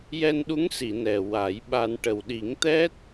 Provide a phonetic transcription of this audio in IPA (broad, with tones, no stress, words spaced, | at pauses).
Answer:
jɛ˧nɗu˧˥ŋsi˨˩˨ nɛ˨˩ wa˨˩˦jɓa˧n ʈə˨˩wɗi˨˩˦ŋt̪ɛ˦˥t̚